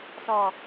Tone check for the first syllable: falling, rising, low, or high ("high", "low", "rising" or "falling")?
low